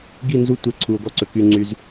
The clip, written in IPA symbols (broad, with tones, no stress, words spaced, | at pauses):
ɡi˦˨nzu˦ tʷɛ˦ ǀʰu˨o̯ɡɔ˦ǀɵ˨ ky˦ŋ͡ǀy˦z